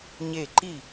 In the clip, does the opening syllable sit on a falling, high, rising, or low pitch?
falling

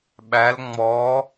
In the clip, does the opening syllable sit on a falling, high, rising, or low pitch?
rising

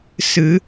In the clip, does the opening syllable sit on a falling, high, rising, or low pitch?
rising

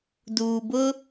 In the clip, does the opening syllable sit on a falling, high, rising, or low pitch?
low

